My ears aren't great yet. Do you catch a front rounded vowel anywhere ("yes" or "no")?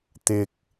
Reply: no